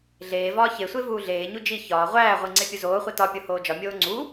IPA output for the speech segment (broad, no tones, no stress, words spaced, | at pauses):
ɮeːvɒː çesʷe vuːɮeːɲu d͡ʒi çɒː ʁʷæːʁʷi ŋ͡ǀepʲuzoːχʷi tɒpʲo hoːd͡ʒɒmʲoː ŋ͡ǀu